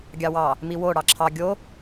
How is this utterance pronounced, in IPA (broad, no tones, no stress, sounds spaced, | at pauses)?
ɡʲ ɑ w ɑ | m i w o ɽ ɑ ǁʰ ɑ ɡʲ o